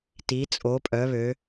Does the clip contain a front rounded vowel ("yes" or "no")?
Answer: yes